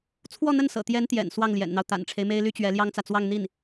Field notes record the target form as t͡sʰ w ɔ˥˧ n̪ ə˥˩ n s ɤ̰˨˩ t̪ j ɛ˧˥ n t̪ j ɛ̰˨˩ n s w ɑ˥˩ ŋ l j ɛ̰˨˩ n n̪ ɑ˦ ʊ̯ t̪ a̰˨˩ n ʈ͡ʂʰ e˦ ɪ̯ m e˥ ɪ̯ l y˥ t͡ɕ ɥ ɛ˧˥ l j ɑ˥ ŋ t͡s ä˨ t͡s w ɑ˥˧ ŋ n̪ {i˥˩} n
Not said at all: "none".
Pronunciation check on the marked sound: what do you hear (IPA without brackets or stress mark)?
i˥˩